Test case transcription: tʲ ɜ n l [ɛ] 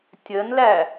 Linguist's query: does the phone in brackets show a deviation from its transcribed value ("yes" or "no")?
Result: yes